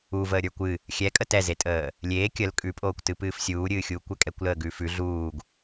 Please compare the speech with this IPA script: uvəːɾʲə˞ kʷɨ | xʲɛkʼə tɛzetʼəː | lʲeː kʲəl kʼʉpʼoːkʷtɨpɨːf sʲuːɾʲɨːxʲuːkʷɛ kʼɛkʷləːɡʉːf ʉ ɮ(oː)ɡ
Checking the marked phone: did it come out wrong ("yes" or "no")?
yes